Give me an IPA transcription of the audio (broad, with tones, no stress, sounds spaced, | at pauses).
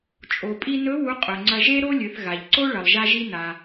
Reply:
t͡ʃʼ o˩ pʼ i˧ n ɵ˧˥ w u˧˥ qʼ ɵ˩ ŋ͡ǀ ɐ˧ ʒ e˥ ɾ o˥ lʲ ɨ˩˧ θ ɣ a˩ ʎ ǀ o˥ ɭ ɐ˩ lˠ ʒ a˧ ʒ i˧ n a˩